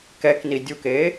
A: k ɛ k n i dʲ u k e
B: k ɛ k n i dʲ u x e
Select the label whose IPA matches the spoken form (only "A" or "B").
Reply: A